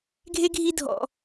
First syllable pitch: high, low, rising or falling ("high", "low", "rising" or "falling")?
high